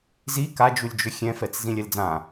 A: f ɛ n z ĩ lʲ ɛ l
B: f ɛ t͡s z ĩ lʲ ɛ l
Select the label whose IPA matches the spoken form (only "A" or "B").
B